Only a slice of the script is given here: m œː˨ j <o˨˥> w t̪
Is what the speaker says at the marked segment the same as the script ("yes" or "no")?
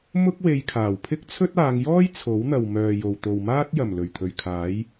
no